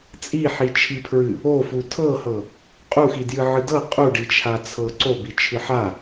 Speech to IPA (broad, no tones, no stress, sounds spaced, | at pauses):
t͡sʼ i ħ i t͡ʃʰ i pʰ ɹ ɨ | o f u tʰ ɤ h ɤ | qʼ u x i d j ɨ ʕ ɨ d ɤ qʼ u ɖ i t͡ʃʰ a t͡sʰ ɤ ǀ o b i t͡ʃʰ ɨ ħ a